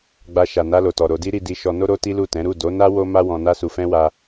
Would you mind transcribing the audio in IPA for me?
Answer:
ɡ͡b a˧ ʃ a˨ n a˧ l o˨ t ɔ˨ ɾ o˧ d i˦ ɾ i˧ d i˧ ʃ ɔ˧ n o˦ ɾ o˦ t i˦ l u˦˨ t ɛ̃˨˦ ɾ u˦˨ d o˨˦ n a˦ w o˦ m a˦ w ɔ̃˧ n a˦ s u˧ f ɛ̃˦ w a˧

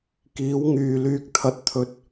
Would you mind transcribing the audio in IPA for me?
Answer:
k iː˨˥ w ŋ yː˨ l yː˧ k̚ t̪ʰ ɐ˨ t̚ t̪ʰ ɵ˨˥ t̚

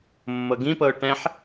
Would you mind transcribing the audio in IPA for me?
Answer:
mː ɤ ɡ ĩ p ɤ ʊ̯ ʈ ɛ̃ ħ

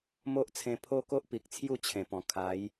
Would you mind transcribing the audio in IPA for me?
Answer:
m o˦ ʔ t͡sʰ ẽ˧ pʰ o˦ k o˦ ʔ p i˨ k̚ t͡sʰ j u˥˧ t͡ɕʰ ẽ˨˩ p ɔ̃˨˩ kʰ a˨˦ j

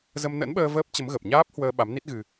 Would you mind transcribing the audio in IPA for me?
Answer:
z ə˧ m n ə̰˧˥ n ɓ əː˧ v əː˦˥ p̚ t͡ɕ ə˨˦ m ɣ ə˨˩ p̚ ɲ aː˦˥ p̚ h w əː˧ ɓ a˨˦ m n i˦˥ t̚ ɣ ɨ˧

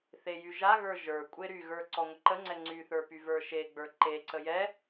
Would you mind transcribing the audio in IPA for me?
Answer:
θ e j y ʒ a ɣ ə˞ ʒ ə˞ kʷʼ e ɾ y ɣ ə˞ ǀ ɔ ŋʷ ə ǃ ə ŋ͡ǀ ɛ ŋ͡ǀ y θ ə˞ p y v ə˞ ʃ e ɡ͡b ə˞ ǃ e ǀ ə j ɛ

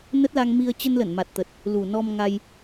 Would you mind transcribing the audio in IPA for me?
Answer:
n ə˦˥ t̚ l a˧ ŋ m i˧ ə̯ t͡ɕ ə˧ n l ə˧˩ n m a˨˩ t̚ t̪ ə˨˩ t̚ | l u˨˩ n ɔ˧ m ŋ a˧ j

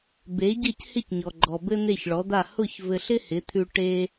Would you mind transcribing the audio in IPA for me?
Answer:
b e˩˥ ɟ ɘ˥˩ c h ɪ˥˩ c ɲ ɔ˩ ɡ͡ǃ ɔ˩ b ɘ˥ n̪ e˥˩ ç ɭ ɔ˩˥ d̪ a˥˩ h ʊ˥˩ ç v ɘ˧ ɬ ɪ˥ h ɪ˩˥ t̪ʰ ʉ˧ ʈ e˧

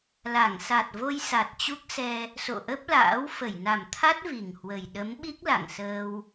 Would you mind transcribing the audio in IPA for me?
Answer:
l a˧˩ ŋ s a˨˩ t̚ v o˧ j s a˨˩ t̚ t͡ɕ u˦˥ k̚ s ɛ˧ | s o̰˧˨ ʔ ə˦˥ p̚ l a̰ː˧˥ w f ə˧˩ j n a˨˩ m t̪ʰ a˦˥ t̚ v i˨˩ ŋ h w ə˨˩ j ɗ ə˨˦ m ɓ i˦˥ k̚ l a̰˧˨ ŋ s əː˧ w

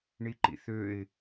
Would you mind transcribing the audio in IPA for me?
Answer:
ɳ i ǃ ḭ θ ø ɪ̯

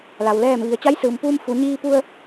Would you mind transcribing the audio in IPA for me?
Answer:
l a˩ w l ɛː˧˩ m ʋ i˩ ə̯ t͡ɕ a˧˥ j s ɯː˩ m p uː˧ m f u˩˧ ɲ iː˧ p u˧ ə̯

